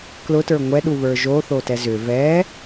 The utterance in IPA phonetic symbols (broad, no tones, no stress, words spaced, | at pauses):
klʊtə˞ ŋʷɛɗu βə˞ʒoθo tɛzʏ vɛ